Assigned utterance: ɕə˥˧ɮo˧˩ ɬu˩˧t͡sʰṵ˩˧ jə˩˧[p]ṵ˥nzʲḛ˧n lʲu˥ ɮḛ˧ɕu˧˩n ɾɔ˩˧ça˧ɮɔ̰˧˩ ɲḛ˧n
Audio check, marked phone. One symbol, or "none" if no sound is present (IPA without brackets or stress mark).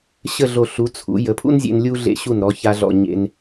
pʰ